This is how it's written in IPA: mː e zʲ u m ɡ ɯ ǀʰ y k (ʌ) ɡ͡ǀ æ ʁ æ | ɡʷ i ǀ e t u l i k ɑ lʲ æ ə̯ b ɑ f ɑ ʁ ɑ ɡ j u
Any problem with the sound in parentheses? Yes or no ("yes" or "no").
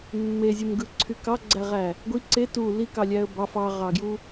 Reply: yes